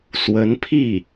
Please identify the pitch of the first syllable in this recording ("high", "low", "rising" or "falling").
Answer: rising